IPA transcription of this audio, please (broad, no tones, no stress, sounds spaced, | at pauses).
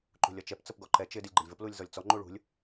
ǃ ṳ lʲ ɒ t͡ʃ ɛ p t͡s ə p ɡ ɔ ǃ ɛ t͡ʃ ɪ d i lʲ ɡ͡ǃ ə lʲ v ə p l u lʲ z ɔ lʲ t͡s ɔ ŋ͡ǃ u ɭ ṳ lʲ